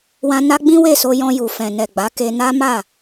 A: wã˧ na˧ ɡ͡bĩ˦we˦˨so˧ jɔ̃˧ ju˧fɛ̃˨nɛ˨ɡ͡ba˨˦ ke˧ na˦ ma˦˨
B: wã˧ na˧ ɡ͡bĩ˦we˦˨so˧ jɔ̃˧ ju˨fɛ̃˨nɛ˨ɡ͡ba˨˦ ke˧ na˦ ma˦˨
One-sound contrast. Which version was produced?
B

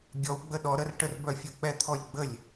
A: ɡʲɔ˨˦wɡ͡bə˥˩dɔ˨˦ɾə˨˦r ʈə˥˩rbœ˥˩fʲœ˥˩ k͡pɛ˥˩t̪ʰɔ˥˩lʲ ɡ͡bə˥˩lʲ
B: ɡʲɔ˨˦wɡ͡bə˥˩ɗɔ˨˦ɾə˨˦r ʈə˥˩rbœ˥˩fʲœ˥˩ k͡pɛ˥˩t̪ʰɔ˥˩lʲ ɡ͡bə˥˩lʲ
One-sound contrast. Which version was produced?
B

